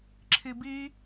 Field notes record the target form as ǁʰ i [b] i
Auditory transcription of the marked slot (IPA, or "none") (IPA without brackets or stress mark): b